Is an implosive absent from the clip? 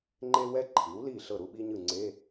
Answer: no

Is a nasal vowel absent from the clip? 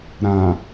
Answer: no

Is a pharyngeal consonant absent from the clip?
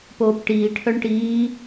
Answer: yes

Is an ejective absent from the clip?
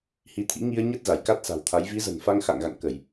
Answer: yes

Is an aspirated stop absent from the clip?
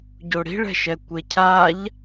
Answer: no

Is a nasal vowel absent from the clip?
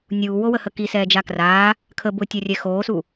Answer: yes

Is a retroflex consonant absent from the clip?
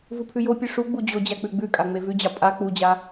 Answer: no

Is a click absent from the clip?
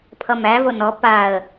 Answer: yes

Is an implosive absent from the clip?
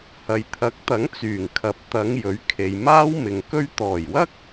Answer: yes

